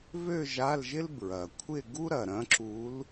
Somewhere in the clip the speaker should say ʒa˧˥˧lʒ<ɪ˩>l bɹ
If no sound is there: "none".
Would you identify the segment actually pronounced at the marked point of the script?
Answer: ɪ˥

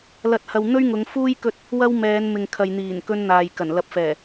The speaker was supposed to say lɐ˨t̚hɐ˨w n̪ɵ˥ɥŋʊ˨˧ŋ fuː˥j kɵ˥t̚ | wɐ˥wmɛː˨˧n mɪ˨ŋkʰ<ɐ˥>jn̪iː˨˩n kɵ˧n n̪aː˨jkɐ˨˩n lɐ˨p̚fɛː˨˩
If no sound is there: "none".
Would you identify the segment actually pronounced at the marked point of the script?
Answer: ɐ˨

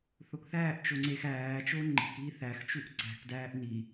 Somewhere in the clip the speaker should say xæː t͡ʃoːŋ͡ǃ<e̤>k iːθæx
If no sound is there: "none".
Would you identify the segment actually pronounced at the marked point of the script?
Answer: e̤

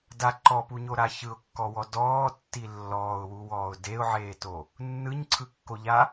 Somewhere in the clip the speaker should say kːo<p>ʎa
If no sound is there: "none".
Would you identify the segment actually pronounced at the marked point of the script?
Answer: none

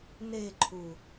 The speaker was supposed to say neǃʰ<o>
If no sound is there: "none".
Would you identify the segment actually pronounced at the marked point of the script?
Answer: u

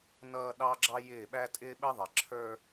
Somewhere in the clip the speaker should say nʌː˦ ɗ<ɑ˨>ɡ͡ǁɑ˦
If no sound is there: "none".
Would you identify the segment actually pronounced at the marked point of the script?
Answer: ɑ˦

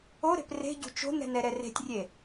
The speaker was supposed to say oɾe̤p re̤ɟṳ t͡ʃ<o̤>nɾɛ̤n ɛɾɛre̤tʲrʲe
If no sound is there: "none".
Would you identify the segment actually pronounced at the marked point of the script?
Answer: o̤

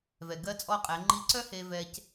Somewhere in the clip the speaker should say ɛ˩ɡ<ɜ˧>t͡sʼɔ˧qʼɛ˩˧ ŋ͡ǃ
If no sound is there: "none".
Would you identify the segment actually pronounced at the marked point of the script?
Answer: ɜ˧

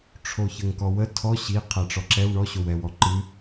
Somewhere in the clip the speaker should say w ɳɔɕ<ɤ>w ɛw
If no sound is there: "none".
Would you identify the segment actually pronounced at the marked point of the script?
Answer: o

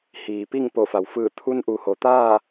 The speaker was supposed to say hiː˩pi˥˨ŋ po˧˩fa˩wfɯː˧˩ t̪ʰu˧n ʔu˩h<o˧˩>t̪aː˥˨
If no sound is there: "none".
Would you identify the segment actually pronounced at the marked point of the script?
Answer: o˩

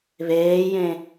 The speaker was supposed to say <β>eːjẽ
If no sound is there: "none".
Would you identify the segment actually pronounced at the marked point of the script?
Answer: β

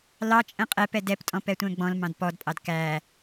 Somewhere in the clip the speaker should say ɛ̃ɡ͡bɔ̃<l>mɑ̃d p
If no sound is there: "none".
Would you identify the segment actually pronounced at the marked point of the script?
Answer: l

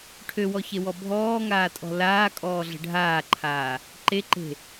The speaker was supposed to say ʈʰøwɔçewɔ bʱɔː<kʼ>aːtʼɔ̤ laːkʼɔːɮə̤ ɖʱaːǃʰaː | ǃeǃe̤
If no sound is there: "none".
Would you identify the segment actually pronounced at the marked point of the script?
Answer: ŋ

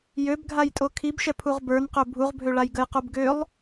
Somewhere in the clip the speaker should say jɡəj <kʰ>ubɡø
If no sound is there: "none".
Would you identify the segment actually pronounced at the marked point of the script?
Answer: q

